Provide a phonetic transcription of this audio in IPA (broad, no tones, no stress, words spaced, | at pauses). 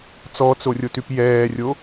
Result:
t͡sɔt͡sorʲotyp jɛːrʲo